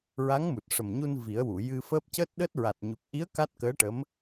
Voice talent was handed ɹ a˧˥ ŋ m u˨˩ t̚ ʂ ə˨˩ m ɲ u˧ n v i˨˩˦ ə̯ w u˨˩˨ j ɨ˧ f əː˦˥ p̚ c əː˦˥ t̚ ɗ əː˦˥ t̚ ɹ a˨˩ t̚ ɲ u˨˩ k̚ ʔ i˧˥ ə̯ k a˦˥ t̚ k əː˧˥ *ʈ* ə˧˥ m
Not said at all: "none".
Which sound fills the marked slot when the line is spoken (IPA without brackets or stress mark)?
ʈ